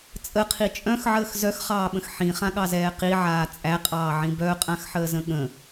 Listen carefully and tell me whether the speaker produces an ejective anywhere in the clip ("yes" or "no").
yes